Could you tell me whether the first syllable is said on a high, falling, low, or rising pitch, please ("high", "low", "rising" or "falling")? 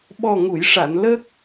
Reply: low